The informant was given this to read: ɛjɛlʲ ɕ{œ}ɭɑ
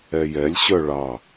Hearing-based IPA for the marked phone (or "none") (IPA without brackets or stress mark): œ